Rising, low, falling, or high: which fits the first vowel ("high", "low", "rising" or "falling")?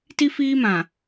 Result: high